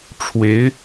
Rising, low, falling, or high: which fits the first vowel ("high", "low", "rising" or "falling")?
rising